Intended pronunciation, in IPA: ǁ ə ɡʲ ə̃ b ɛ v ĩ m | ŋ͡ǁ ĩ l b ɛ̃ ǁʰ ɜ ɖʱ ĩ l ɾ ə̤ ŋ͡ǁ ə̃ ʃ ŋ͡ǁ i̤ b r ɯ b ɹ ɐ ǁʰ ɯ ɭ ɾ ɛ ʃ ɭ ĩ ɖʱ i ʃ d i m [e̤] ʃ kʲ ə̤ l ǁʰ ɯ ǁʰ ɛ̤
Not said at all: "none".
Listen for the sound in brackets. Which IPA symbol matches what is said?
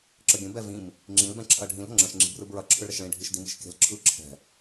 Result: i̤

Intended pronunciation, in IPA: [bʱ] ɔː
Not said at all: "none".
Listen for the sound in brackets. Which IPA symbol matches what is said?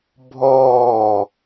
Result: bʱ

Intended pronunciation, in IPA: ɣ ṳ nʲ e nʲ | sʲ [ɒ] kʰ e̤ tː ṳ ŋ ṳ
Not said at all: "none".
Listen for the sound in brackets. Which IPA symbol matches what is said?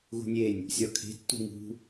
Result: ɒ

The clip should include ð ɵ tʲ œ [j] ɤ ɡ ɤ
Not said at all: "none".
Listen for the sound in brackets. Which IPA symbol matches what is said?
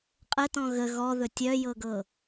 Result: j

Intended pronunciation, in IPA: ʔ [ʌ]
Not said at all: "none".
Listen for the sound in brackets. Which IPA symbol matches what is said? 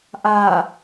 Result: a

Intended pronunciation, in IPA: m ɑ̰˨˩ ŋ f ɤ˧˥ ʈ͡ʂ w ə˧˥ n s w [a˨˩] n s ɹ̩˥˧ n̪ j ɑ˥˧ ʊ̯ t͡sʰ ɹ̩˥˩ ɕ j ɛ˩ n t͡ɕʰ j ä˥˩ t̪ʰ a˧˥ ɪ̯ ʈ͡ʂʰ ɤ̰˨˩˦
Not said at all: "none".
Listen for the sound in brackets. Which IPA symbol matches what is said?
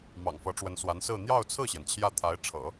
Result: a˧˥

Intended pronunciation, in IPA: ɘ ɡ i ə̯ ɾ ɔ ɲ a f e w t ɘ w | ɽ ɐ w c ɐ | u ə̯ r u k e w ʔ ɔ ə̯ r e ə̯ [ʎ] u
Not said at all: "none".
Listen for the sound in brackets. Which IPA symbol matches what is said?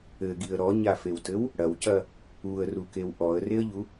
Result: ʎ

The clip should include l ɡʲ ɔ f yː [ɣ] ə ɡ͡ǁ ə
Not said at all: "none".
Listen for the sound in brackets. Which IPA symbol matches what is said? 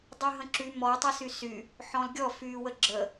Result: w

